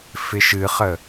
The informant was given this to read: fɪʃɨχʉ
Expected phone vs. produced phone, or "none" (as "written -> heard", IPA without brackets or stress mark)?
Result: ʉ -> ə